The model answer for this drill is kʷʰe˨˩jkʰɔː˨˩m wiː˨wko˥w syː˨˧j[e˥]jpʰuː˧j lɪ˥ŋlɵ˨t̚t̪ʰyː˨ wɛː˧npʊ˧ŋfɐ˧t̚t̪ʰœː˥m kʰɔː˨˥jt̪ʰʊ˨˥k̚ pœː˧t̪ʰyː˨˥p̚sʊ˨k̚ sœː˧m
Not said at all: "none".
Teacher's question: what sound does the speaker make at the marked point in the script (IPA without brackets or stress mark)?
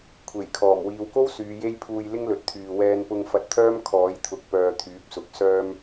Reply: e˥